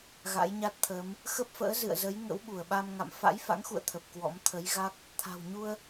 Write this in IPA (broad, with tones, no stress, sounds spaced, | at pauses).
ɣ a̰˧˥ j ɲ a˦˥ t̚ t̪ʰ əː˨˦ m | x ə˦˥ p̚ f ə̰ː˧˥ z ɨ̰˧˨ ə̯ z ə˨˦ j ŋ ə̰˧˥ w ɓ u˧˩ ə̯ ɓ a˧ m ŋ a̰˧˨ m f a̰˧˥ j f a̰˧˥ ŋ x ṵ˧˨ ə̯ t̪ʰ ə˨˩ p̚ k w ɔ̰˧˥ m t̪ʰ ə˨˦ j ɣ a˦˥ k̚ | t̪ʰ a̤˨˩ w ɲ u˧ ə̯